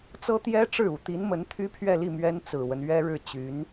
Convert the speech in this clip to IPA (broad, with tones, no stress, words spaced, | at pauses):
t͡sɤ˥t̪jɛ˥ʈ͡ʂɻ̩˥˩u˨˩ t̪i˧˥nmə˧˥n t̪ʰy˥pʰɥɛ˥˧li˥˩ mɥɛ˥nt͡sɹ̩˨˩wə˦n ɥɛ˥ɻɻ̩˥˩t͡ɕy˧˥n